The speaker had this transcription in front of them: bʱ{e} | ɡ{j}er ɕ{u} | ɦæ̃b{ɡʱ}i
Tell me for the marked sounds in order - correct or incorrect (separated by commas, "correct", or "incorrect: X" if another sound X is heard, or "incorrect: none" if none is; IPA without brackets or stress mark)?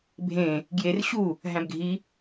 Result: incorrect: ẽ, correct, correct, correct